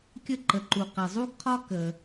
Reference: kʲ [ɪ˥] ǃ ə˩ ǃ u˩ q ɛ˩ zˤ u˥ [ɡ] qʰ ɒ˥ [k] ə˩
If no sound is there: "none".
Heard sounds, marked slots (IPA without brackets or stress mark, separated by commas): ə˥, ɡ, k